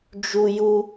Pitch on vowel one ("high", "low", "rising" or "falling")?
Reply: high